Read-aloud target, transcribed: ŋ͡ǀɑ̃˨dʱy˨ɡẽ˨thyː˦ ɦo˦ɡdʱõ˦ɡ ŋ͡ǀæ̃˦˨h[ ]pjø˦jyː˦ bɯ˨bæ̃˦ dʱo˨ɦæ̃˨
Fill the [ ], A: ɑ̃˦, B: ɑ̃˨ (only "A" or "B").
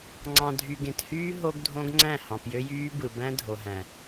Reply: B